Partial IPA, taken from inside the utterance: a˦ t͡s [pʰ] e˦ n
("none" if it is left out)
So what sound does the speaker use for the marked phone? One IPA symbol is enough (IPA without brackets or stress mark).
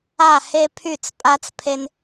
pʰ